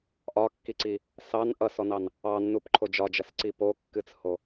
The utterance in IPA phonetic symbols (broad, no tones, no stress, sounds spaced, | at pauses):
ʔ ɒ kː i ǀ i | s ɑ n ʔ ʌ s ɔ n ɑ n | ɑ nː u p ǃʰ o d͡ʒ ɒ d͡ʒ ʌ s ǀ i p o kː ɨ t͡s h o